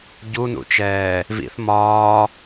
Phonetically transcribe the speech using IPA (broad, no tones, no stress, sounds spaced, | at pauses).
ɟ u n ṵ t͡ʃ ɛː | v ḭ θ m ɒː